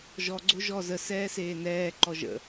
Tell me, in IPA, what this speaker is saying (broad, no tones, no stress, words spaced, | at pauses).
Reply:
ʒɔɡ͡ǀo ʒɔ zə sɛːseːnɛː ǃɔʒə̰